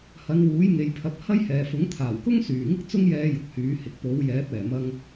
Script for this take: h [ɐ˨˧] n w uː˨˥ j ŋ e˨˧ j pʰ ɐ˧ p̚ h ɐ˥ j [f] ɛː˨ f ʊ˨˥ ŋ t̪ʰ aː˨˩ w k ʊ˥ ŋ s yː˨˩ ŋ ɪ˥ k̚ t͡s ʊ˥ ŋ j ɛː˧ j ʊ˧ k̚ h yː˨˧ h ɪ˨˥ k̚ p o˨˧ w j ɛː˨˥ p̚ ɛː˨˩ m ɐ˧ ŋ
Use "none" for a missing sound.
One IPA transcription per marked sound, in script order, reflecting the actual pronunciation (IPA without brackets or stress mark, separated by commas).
ɐ˨˧, h